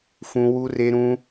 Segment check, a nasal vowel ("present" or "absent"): present